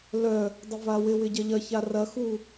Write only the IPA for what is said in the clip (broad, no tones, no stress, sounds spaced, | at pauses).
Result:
l œ | dˤ ɪ v a w ɪ w ɪ ɟ ɐ ʎ ɐ ç a r ɐ x u